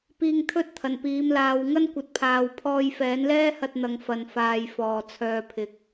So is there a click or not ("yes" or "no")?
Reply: no